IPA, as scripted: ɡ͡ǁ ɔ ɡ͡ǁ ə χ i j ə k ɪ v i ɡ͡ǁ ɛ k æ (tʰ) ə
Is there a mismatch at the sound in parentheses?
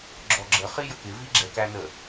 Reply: yes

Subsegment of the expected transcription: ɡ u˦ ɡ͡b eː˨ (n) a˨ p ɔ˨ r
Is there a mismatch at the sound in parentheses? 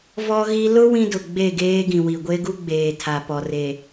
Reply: yes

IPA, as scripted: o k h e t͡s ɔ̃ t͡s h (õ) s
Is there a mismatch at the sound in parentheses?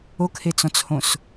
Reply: no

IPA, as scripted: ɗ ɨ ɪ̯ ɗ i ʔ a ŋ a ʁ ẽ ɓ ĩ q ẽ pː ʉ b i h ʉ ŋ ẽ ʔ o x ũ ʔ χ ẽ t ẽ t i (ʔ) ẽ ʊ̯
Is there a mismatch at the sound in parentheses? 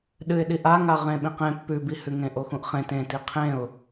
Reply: yes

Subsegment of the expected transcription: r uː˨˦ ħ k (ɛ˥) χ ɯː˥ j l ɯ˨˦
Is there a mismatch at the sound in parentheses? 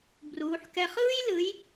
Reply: no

